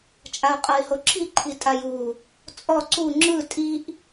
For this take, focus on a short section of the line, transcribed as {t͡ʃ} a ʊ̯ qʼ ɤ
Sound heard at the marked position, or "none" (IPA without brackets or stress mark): t͡ʃʼ